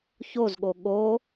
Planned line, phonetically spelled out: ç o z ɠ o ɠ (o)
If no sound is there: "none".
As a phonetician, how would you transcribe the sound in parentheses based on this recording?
o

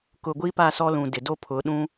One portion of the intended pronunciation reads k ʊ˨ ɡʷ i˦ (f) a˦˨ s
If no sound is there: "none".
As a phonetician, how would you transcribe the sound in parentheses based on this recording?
p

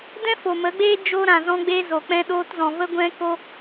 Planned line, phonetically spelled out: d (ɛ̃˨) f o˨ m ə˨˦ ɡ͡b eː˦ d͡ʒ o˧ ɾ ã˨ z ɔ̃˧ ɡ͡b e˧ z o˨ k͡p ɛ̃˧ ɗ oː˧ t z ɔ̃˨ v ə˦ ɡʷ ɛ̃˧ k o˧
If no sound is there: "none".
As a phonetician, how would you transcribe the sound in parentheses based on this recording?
ɛ̃˦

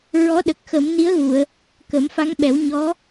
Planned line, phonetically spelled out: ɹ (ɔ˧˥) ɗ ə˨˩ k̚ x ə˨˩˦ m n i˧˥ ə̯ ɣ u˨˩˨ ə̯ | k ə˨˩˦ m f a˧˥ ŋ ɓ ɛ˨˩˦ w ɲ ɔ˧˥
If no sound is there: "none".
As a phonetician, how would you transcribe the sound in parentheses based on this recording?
ɔ˧˥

